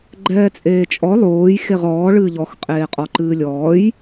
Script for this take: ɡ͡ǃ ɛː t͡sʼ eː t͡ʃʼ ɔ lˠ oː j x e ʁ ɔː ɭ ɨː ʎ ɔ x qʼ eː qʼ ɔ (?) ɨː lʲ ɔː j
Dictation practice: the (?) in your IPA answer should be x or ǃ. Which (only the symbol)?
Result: ǃ